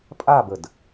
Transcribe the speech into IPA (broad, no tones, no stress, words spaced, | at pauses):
pʼabəd